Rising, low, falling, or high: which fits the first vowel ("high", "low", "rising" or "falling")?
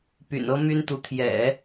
low